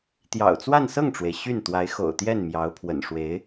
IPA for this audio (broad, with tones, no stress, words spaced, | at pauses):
t̪jɑ̰˨˩ʊ̯t͡swa˥˧nsɤ˥˩ŋʈ͡ʂwe˩ɪ̯ ɕy˥˩n t̪wa˧˥ɪ̯xo̰˨˩ʊ̯t̪jɛ˥˩n mjɑ˧˥ʊ̯pʰwə̰˨˩n ʂwe˧˥ɪ̯